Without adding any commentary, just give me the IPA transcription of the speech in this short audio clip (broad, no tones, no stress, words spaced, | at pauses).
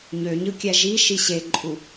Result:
ɲøɲɯkʲæ ʒiʃi ɕeǃʼu